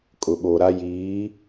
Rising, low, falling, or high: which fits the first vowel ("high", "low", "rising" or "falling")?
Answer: low